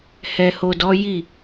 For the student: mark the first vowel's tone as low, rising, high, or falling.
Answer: low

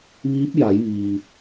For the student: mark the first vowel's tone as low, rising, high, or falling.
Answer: rising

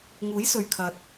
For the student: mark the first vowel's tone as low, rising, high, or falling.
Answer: rising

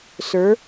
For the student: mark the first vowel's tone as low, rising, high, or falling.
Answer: rising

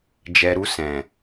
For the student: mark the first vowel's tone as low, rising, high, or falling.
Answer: low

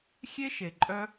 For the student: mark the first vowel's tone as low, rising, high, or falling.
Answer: high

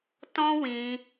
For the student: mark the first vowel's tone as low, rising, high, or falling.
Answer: high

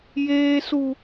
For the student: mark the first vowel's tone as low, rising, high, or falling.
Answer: high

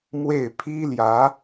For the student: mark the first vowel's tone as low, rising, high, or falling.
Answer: falling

